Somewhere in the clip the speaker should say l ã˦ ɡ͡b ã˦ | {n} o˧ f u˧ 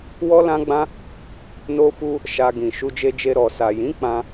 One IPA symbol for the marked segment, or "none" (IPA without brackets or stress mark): n